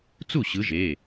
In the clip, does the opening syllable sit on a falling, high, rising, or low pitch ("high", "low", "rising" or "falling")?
falling